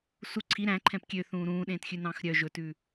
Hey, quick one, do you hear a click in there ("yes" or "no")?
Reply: yes